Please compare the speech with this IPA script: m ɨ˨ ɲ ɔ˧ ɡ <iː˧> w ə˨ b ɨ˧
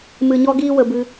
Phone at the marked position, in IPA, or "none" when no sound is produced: iː˧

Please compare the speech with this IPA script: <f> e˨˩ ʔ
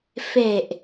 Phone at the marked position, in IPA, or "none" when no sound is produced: f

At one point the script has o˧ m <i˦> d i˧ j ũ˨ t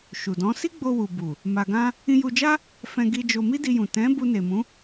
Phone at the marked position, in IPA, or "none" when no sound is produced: i˦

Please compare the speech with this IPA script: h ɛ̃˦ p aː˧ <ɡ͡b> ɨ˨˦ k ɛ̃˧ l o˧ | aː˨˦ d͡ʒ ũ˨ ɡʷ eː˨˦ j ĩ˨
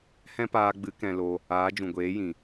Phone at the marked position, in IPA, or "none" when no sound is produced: ɡ͡b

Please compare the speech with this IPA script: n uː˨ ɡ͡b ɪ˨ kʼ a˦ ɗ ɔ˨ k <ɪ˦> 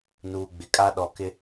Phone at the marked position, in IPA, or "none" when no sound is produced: ɪ˦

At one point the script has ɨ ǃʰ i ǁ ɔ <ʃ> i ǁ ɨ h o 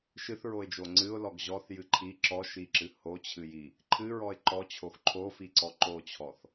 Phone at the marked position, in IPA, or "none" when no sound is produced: ʃ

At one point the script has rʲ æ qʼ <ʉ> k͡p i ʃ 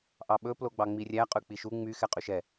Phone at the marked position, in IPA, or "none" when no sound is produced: ʉ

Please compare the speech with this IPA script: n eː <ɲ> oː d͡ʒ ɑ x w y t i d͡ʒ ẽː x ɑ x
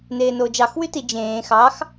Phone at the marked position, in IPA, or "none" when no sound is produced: n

